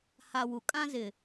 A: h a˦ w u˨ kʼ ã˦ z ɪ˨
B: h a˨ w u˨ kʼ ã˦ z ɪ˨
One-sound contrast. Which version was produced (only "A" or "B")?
B